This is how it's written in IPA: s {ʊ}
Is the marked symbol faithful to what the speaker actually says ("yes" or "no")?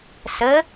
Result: no